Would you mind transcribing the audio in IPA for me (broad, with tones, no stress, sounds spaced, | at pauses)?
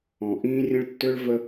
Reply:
ɔ̃˨ ʔ ĩː˦ rʲ ə̃˦ ɭ tː ʏ˦ ɭ v ə˦